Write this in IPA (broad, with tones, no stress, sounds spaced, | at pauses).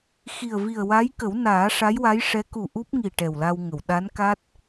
x i˨˩ ə̯ v i˨˩ ə̯ w a˧˥ j k ə˨˩˦ w n aː˨˩˦ ʂ a˧˥ j w a˧˥ j ʂ ɛ˧˥ k u˨˩ ʔ u˦˥ p̚ ŋ i˨˩ ʈ ɛ˨˩ w l a˧ w ŋ ə˨˩˨ w ɗ a˧˥ n k a˦˥ t̚